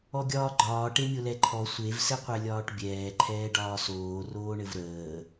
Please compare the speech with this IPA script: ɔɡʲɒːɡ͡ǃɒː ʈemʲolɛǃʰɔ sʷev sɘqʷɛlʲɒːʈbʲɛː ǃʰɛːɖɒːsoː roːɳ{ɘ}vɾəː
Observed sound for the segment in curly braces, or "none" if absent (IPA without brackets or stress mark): ɘ